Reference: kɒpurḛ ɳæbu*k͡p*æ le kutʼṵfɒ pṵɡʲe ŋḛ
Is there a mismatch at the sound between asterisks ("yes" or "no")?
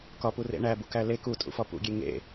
yes